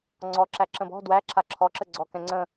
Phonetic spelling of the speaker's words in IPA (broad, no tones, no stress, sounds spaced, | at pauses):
ŋ͡ǀ ɔ ǁ æ ǁ ə̃ b ɔ̤ d w æ ǁʰ a ǁʰ ɔ ǁ ə ɡ͡ǀ ɔ k ɛ̃ ŋ͡ǀ ə̃